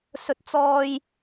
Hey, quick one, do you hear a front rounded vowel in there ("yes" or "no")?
no